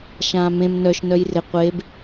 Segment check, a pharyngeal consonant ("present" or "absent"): absent